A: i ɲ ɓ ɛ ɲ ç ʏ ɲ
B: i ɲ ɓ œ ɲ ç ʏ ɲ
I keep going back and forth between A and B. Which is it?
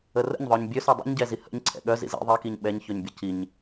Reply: A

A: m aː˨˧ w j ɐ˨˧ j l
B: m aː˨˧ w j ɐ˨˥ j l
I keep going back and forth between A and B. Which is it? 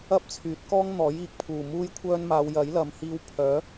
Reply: B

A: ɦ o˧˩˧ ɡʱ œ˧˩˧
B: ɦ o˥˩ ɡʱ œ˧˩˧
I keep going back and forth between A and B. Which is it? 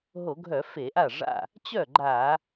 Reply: A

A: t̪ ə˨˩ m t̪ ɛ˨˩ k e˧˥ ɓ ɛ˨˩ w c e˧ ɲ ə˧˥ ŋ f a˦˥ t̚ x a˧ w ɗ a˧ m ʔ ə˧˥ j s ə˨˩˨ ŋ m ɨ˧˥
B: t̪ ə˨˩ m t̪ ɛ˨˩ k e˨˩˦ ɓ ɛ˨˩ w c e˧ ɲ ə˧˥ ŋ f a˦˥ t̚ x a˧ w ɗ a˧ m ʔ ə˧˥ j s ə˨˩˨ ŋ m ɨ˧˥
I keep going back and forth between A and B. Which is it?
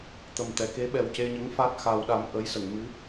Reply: A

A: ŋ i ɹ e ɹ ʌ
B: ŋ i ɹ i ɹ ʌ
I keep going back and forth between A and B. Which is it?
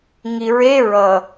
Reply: A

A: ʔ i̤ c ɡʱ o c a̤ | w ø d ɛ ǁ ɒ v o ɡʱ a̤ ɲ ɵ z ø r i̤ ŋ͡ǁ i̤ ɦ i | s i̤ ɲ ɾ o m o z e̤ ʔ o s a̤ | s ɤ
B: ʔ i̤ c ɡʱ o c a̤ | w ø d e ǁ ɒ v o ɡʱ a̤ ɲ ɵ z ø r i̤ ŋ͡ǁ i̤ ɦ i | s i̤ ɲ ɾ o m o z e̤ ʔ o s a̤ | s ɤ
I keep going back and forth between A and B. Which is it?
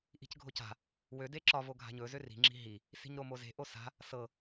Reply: B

